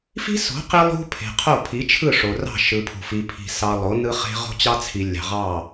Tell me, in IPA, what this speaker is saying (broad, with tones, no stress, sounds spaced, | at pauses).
f i̤˦ s o̤˨˦ q i˦ lˠ ṳ˦ pʰ e̤˨ qʰ o˦˨ pʰ i˨˦ t͡ʃʰ ɯ˦˨ ʂ o˨ r ɑ̤˦˨ ʃ ɯ˨ pʰ ṳ˨ f i˨ pʰ i̤˨ s ɑ˨ lˠ o˨˦ n ɯ˦ χ e̤˦ ʁ o̤˦ t͡ɕ ɑ˦ t͡sʰ i˨ lʲ ɑ̤˨ ʁ ɑ˦˨